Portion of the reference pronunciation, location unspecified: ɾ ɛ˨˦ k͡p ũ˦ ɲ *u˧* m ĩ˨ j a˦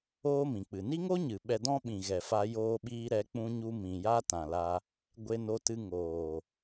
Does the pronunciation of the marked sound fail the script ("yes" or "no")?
yes